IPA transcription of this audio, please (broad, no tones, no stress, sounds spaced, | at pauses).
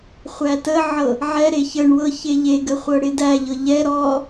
χʷ æ t ə ʕ ɤ | ʕ ɛ ɾ e ç ə ɳ w ɤ ç e ʎ e ɡ ə χʷ ɤ ɽ ɪ d æ ʎ ɤ ʎ ɛ ɾ ɔ